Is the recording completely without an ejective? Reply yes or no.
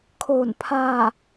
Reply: yes